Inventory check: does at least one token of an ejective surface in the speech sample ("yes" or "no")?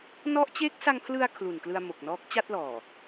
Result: no